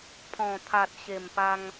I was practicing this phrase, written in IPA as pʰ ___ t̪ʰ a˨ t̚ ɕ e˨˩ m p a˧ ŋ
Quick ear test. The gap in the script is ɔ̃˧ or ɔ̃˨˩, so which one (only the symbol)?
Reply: ɔ̃˨˩